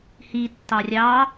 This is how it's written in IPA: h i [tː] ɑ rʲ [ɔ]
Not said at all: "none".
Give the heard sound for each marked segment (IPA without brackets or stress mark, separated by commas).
tː, ɑ